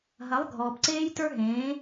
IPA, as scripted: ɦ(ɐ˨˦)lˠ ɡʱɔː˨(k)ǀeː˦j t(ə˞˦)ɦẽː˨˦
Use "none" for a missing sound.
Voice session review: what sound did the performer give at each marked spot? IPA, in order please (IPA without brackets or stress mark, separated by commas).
ɐ˨˦, p, ə˞˦